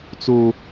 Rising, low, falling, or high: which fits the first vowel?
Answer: high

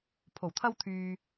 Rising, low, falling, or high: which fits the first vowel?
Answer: low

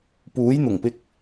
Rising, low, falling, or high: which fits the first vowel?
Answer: rising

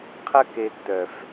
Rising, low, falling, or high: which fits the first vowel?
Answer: high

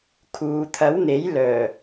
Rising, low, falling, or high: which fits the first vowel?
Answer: low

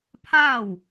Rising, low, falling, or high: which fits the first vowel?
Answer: falling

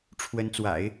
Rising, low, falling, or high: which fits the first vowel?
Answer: rising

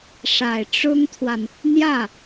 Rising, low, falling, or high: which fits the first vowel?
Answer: low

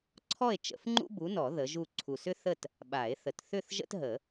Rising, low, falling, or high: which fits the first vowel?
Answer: falling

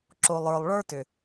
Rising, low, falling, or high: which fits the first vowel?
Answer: low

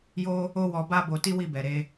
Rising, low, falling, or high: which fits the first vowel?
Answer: high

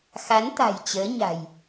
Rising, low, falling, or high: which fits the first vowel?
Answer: rising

